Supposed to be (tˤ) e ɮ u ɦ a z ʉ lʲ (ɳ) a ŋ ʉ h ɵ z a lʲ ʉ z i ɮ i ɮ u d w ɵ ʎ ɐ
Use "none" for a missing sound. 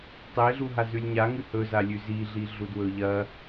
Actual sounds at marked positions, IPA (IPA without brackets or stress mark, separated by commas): tˤ, ɲ